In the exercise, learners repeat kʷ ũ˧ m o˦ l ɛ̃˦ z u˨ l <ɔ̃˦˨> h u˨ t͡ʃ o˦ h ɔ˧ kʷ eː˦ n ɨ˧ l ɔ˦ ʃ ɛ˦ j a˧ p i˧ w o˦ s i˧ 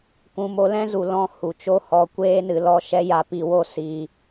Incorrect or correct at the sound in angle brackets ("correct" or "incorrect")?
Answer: correct